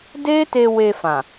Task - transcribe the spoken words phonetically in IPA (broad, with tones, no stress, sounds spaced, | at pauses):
d e˦ t e˧ w e˧ f ã˨